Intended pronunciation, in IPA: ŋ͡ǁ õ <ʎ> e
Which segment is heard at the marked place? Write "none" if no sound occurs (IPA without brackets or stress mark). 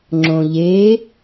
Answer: ʎ